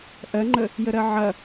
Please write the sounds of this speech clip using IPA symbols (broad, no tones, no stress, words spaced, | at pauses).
ʔɜŋ͡ǃə | jəɾɜʕɐ